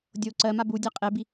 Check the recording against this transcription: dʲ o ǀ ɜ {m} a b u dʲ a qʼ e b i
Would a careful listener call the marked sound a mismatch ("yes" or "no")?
no